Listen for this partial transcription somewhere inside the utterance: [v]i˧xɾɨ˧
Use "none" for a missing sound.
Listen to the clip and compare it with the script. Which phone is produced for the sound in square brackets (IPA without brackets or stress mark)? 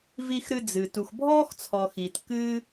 v